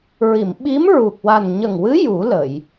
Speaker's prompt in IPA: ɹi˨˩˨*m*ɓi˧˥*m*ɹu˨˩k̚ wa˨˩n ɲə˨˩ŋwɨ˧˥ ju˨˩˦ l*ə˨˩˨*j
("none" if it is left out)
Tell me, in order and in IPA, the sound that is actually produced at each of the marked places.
m, m, ə˨˩˨

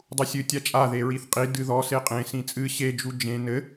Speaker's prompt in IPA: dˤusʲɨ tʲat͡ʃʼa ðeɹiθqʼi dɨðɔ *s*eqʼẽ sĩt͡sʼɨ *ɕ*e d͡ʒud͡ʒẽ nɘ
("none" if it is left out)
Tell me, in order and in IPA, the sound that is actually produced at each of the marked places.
s, ɕ

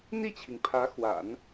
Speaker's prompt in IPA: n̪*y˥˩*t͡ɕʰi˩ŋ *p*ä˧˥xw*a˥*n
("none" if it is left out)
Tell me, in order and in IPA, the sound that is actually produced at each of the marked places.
i˥˩, pʰ, a̰˨˩˦

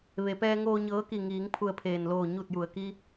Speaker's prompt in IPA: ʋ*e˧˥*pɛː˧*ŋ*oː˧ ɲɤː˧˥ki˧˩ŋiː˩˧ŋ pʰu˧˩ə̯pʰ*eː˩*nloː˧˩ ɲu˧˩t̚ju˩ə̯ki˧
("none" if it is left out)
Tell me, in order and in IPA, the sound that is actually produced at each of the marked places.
e˩, ŋ, eː˩

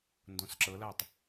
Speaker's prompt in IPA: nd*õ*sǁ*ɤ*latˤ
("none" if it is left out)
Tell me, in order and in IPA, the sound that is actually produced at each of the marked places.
õ, ɤ

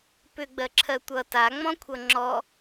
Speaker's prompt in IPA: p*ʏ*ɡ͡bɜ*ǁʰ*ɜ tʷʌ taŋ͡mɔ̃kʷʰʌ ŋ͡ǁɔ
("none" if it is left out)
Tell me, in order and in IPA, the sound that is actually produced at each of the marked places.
ʏ, ǁʰ

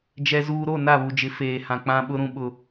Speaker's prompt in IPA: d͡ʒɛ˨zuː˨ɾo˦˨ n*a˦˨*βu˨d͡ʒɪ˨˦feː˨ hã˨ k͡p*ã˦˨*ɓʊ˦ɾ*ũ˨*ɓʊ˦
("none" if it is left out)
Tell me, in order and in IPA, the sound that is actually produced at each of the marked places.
a˦˨, ã˦, ũ˦

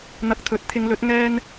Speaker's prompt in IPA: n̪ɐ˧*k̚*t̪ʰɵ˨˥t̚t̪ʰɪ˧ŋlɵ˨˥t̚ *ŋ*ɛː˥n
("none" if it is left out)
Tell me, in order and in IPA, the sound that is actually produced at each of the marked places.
k̚, ŋ

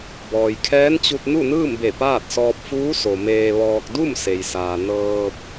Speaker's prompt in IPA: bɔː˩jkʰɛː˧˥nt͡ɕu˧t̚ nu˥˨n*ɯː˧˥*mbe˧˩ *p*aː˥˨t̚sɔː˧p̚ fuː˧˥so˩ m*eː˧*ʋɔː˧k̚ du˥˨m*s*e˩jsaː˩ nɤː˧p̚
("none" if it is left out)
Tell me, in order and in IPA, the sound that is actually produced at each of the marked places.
ɯː˥˨, p, eː˧, s

